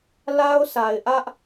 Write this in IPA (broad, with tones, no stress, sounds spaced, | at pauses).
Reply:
l a˦ ʊ̯ s a˨ ɪ̯ ʔ ä˦ ʔ